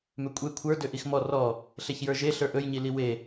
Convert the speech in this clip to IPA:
m ø kʷʼ e kʷʰ ə˞ d ø ʔ i x m ɔ r ɔ | ɬ e ç j ə˞ ʒ e ɬ ə˞ ʔ ɵ j ɲ i l i w e

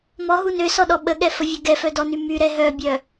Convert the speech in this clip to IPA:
m ɔ ɦ u n ø s ɔ ɗ ɔ ɓ ə ɠ ɛ f ə vʲ ø ɡ ɛ f œ d ɔ n y m y ɾ ɛ ɦ œ bʲ œ

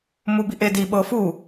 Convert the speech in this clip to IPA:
m u b i ʔ e d i ɓ ɤ f u

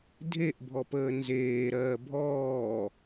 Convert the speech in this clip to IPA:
dʱ e ʔ bʱ ɔ p əː n z eː ɾ ɜː bʱ ɔː

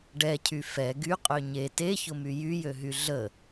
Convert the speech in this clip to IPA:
ɖ ɛ cʰ y f ɛ ɡ y qʼ ø ɲ e t e ç ʊ m y j y j ø ɦ y ɮ ə

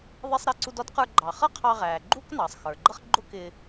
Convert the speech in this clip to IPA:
ðˤ ɛ˧ sˤ ɾ i˧ ǀ u˧ d ɔ˥ d q ə˞˧ ɡ͡ǃ ɑ˩ χ ʌ˥ qʰ ɑ˧ ʁ æː˩ ɡ͡ǃ u˥ k n ɑ˩ sˤ x ə˞˩ ɡ͡ǃ ʌ˥ χ ɡ͡ǃ ʊ˥ k ɪː˧

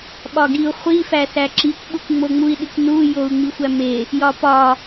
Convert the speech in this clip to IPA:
ɓ ɒ ɡ i u̯ χʷ i f æ s æ ǁ i kʷ ɓ u kʷ ŋ͡m o ŋ͡m u i̯ ɗ i kʷ n u j o u̯ ŋ͡m i xʷ æ m e | j ɒ p ɒ

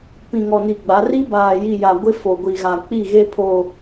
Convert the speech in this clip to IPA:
p ĩ˨ ŋ ɔ˨ n i˨ ɡ͡b a˨˦ r i˦ b aː˨ j i˨ j a˨ ɡʷ ɪ˦ f o˨ ɡʷ i˨ ɣ a˨ k͡p i˦˨ ɣ e˦ pʰ o˨

